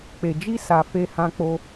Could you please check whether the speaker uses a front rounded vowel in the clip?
no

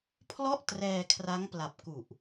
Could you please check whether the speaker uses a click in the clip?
no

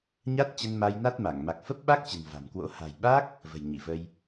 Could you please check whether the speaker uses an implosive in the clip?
yes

